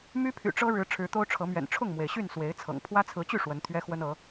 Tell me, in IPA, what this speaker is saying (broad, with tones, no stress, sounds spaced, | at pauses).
m y˦ pʰ y̰˨˩ ʈ͡ʂ ɤ˦ ɻ ɻ̩˨˦ ʈ͡ʂʰ ɻ̩˨˦ t̪ o˦ ʊ̯ ʈ͡ʂʰ ɤ˨˦ m ɥ ɛ̰˨˩ n ʈ͡ʂʰ ʊ˥˨ ŋ m w e˩ ɪ̯ ɕ y˥˨ n s w e˨˦ ɪ̯ t͡sʰ ɤ̰˨˩ ŋ pʰ w ä˦ t͡sʰ ɹ̩˨˦ t͡ɕ y˥˨ ʂ w ə˨˦ n t̪ʰ ɥ ɛ˦ x w ə˦ n ɤ˨˦